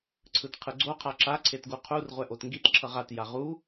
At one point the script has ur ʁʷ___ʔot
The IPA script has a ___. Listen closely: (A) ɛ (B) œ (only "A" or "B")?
A